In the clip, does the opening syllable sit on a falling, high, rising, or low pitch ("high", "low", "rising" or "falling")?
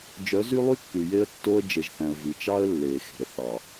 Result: rising